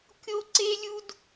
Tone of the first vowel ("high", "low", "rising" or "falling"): high